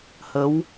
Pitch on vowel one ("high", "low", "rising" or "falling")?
rising